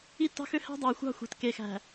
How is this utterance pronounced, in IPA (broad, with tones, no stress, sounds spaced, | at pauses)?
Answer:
i˦ tː ɑ̤˦ x ø˦ h æ̤˦ dˤ ɑ˨ j xʷ ɑ̤˦ xʷ e̤˨ t k e˨ x æ̤˨